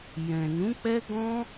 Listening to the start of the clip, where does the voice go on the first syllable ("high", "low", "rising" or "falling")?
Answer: low